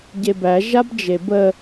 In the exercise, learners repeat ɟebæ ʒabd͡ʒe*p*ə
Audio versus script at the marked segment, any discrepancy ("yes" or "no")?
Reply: yes